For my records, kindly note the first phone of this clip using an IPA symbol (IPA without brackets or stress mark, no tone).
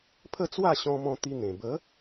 pʰ